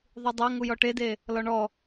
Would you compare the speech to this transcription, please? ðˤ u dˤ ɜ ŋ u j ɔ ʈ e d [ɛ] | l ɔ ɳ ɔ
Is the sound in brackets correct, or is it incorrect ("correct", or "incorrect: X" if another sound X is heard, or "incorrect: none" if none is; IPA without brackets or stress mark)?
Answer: incorrect: e